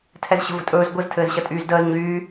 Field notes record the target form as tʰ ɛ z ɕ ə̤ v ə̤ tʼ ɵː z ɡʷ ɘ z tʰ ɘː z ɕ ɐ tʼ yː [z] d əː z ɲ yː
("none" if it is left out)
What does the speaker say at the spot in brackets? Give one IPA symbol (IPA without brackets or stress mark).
z